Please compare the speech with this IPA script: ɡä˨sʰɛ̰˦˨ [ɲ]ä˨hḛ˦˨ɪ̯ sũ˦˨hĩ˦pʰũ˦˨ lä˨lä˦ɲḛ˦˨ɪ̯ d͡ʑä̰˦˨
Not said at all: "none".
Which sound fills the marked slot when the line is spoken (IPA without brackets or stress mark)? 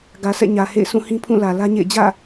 ɲ